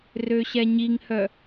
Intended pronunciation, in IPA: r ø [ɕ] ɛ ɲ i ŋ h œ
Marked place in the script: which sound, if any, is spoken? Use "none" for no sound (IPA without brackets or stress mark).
ɕ